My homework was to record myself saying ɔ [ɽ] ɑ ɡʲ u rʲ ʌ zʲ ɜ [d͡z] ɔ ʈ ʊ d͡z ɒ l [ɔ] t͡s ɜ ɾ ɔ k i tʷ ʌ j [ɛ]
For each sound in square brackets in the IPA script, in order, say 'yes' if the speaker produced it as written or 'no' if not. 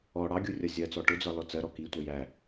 yes, no, yes, no

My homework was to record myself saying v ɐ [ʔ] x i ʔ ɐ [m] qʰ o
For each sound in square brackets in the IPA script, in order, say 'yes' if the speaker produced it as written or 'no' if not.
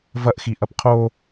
yes, no

